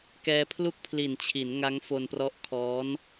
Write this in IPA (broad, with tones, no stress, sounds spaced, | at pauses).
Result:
k ɛː˧ pʰ l u˥˩ k̚ pʰ l i˨˩ n t͡ɕʰ i˩˦ n ŋ a˦˥ ŋ f o˧ n p r ɔ˦˥ ʔ kʰ ɔː˦˥ n